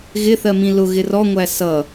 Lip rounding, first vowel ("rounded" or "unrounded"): unrounded